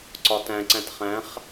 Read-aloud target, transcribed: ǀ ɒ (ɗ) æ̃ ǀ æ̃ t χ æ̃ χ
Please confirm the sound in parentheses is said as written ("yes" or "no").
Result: no